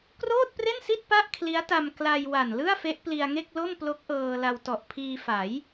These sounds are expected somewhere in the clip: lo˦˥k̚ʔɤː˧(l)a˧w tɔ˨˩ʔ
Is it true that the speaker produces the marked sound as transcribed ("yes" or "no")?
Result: yes